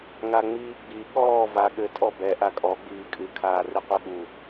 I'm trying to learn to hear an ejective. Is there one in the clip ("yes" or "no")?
yes